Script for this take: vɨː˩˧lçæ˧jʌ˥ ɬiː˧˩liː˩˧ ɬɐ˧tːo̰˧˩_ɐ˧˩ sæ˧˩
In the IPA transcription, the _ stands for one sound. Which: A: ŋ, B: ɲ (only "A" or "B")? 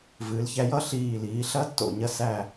B